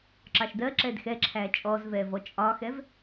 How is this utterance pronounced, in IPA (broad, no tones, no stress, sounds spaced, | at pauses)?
ǁ ɑ ʃ d ɜ ǁ ɛ d x ɛ ǁʰ æ t͡ʃʼ ɔ z v ɛ v ɔ t͡ʃʼ ɒ x ɛ v